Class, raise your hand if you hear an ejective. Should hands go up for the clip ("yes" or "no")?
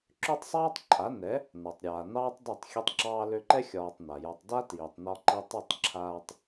yes